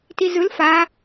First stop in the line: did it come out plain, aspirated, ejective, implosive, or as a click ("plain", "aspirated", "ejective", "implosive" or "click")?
plain